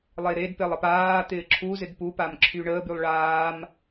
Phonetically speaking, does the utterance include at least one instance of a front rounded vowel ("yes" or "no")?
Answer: yes